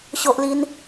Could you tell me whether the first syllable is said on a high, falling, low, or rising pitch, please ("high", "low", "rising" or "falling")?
high